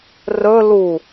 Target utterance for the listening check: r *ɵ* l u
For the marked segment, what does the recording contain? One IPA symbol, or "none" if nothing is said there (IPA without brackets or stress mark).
ɵ